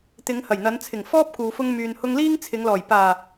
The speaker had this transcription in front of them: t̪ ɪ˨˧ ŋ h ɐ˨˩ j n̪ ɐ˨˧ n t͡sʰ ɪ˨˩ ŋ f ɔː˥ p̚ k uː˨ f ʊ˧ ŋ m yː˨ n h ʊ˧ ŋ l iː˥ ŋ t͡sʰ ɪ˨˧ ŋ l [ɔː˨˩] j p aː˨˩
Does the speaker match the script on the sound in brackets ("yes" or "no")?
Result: yes